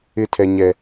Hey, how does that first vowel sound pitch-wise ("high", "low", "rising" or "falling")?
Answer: falling